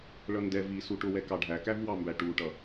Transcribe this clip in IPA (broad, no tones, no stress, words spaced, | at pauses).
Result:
ɭʌndɛ vi suʈʊwɛ kɑɖʱækævwɑ mbæʈuʈʌ